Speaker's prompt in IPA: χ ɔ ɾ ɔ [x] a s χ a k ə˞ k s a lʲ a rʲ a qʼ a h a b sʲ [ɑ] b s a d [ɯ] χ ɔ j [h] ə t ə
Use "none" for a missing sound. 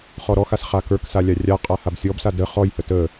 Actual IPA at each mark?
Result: x, ɔ, ə, h

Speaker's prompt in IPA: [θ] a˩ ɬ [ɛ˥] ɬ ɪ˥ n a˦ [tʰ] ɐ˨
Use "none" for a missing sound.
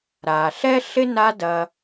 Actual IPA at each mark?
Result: ɾ, ɛ˥, d

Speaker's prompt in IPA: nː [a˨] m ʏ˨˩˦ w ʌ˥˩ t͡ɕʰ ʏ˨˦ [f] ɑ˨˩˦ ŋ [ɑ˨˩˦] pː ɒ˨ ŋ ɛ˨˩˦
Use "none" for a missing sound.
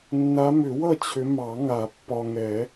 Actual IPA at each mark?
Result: a˨˦, m, a˨˩˦

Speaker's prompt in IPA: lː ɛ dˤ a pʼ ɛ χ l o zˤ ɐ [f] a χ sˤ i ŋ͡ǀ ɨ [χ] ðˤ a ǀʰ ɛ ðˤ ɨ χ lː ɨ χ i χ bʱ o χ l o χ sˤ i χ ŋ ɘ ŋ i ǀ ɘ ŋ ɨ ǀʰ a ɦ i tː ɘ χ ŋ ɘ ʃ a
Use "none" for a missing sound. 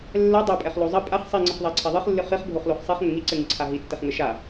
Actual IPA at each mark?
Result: pʼ, χ

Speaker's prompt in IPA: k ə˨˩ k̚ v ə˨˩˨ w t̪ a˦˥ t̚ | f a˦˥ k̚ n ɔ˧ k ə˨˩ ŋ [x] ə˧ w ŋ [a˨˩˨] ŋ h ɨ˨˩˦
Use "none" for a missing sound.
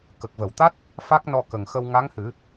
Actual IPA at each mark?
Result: x, a˧˥

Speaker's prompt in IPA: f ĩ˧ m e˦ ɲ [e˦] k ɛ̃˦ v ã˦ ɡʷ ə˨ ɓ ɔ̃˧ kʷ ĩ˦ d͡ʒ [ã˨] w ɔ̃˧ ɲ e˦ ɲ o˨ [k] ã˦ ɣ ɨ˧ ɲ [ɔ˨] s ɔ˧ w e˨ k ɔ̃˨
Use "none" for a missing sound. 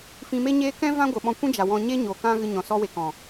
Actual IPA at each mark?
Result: eː˦, a˨, k, ɔ̃˨

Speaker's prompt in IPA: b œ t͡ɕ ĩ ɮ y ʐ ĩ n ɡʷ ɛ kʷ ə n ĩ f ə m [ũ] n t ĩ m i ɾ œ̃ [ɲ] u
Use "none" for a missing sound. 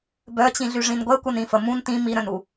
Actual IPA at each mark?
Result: ũ, n

